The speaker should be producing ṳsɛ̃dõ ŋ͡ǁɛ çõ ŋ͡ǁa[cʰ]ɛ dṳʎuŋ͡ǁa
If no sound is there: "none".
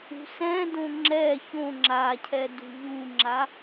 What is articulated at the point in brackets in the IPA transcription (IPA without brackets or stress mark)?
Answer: cʰ